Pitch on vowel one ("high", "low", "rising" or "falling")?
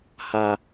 low